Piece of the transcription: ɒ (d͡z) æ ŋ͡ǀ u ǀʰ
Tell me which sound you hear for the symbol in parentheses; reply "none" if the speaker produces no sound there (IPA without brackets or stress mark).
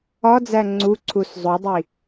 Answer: d͡z